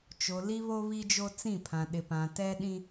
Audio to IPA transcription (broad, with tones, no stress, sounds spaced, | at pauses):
t͡ʃ o˨ l i˦ β o˦ β i˦ d͡ʒ o˦ t͡s ĩ˦˨ pʰ ã˨ ɗ ɪ˨ p ã˨ t ɛ˦ ɗ ĩ˦